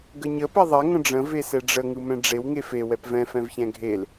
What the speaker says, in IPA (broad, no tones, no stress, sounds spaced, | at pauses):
ɡ ə ɲ ə p ɛ ðˤ ɛ ŋ ə̃ ɖ͡ʐ ə̃ v e s ɛ ɖ͡ʐ ə ŋ ɯ m ɛ̃ ɖ͡ʐ e w ŋ e f e w ɛ p v ɛ̃ f ɛ̃ v ç ɛ̃ ɡʱ e l